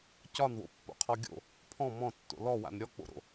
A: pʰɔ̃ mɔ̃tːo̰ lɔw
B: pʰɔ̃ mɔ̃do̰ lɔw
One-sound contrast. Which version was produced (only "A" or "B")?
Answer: A